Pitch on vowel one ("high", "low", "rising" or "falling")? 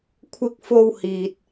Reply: low